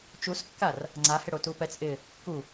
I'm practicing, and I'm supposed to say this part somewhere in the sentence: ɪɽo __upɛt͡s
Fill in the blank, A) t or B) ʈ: A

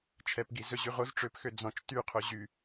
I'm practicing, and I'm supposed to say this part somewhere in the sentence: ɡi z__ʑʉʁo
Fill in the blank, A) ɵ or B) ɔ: A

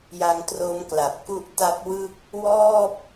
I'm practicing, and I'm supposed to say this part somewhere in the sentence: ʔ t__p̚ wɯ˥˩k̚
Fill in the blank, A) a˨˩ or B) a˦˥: B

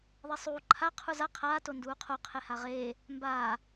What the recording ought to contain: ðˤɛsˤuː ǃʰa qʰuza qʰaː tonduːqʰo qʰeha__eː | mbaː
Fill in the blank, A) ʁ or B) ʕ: A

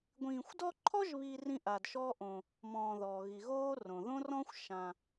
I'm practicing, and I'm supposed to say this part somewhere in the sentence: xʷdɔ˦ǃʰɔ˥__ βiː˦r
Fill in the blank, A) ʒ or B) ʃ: A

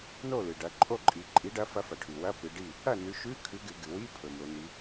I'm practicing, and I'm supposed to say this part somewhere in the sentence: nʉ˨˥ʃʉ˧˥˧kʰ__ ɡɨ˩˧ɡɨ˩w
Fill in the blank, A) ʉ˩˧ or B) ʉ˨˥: B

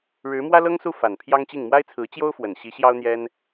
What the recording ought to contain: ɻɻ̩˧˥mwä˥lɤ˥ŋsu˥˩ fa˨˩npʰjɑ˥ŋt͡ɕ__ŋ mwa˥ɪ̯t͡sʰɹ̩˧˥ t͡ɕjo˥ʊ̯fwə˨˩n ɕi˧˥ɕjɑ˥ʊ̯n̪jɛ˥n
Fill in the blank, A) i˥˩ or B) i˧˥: A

